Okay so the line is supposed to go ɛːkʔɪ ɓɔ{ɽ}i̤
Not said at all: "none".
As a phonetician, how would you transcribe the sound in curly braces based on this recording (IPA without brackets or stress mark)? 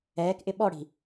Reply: ɽ